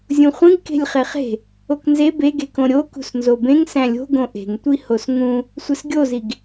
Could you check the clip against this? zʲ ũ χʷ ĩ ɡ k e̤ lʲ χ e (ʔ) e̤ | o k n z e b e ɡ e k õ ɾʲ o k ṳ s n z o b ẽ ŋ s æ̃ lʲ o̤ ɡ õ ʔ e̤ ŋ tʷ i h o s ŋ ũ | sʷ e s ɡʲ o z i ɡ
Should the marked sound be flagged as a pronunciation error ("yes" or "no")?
yes